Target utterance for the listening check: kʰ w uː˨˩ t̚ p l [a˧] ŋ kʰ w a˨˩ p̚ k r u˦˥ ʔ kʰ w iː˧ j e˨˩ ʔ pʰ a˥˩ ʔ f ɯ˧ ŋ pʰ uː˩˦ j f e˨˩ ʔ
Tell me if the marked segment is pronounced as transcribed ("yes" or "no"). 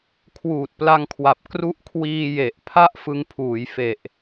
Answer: yes